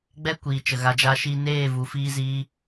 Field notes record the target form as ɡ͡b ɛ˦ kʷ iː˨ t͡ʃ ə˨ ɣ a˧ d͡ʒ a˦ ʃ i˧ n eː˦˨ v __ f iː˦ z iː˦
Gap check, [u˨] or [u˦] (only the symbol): u˨